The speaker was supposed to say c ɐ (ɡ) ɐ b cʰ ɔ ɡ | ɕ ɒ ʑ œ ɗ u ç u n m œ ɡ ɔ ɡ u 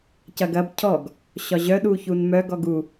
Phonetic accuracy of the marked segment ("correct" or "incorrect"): correct